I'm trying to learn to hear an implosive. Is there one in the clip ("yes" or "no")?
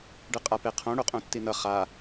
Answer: no